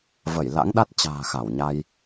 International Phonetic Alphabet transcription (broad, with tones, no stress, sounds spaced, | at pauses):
v ə˧˩ j l a̰˧˥ ŋ ɗ a˦˥ t̚ t͡ɕ a̤ː˨˩ x a˧˩ w ɲ a˧ j